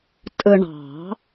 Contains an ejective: yes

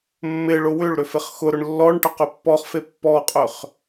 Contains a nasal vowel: no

